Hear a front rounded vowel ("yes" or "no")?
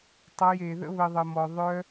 yes